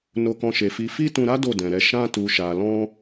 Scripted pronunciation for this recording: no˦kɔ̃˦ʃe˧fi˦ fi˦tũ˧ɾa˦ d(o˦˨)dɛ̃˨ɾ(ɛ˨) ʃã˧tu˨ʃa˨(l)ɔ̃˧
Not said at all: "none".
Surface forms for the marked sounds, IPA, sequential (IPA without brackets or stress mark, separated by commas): o˦˨, ɛ˧, l